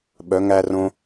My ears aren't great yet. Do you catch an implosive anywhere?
yes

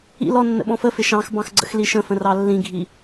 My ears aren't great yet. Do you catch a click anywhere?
yes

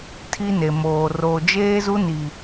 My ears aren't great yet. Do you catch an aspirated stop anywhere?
yes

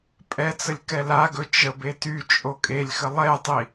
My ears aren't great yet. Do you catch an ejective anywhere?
yes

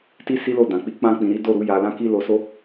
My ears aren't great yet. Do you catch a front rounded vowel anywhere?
no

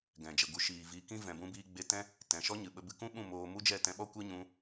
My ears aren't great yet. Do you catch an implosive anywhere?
yes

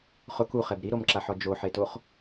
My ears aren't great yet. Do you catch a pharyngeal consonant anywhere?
yes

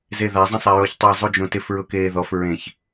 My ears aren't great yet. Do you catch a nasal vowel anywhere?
yes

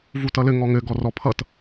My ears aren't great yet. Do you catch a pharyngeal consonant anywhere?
no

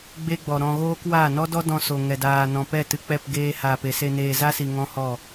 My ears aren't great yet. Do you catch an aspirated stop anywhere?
no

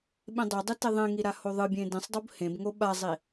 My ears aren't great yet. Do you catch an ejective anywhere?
no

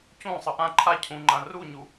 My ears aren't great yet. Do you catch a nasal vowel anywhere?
yes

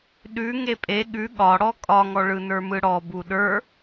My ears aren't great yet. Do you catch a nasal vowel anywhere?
no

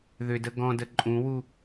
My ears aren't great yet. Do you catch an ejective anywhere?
yes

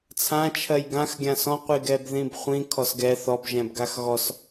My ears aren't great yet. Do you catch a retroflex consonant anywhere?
no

